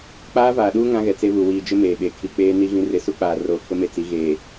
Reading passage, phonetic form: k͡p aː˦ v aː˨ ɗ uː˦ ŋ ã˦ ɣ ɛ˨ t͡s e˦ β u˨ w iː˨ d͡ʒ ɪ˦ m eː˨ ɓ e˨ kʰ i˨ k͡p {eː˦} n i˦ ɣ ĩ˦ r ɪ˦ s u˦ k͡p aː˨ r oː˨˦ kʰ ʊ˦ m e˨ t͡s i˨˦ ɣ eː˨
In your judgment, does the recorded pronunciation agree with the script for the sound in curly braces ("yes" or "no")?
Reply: yes